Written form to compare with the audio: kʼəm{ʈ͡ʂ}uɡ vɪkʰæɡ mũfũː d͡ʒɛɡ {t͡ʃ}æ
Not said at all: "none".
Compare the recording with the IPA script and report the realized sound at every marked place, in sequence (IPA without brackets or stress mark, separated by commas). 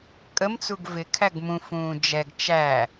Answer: t͡s, t͡ʃ